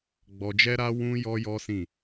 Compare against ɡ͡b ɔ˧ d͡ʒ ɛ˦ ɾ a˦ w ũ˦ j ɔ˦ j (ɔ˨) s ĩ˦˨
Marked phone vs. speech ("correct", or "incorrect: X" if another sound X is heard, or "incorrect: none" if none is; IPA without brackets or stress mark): incorrect: ɔ˦